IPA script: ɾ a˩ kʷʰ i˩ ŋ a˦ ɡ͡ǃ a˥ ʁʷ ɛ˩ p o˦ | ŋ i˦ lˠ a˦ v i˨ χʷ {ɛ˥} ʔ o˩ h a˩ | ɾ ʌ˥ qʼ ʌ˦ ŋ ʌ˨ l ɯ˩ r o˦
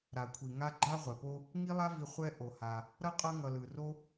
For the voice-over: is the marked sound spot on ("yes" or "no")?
no